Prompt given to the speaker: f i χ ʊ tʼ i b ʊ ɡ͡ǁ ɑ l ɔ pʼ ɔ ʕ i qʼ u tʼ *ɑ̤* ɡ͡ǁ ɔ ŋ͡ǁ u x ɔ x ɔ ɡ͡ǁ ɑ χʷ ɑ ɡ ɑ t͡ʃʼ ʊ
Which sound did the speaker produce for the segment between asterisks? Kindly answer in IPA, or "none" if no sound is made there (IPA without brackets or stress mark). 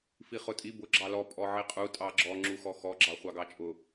ɑ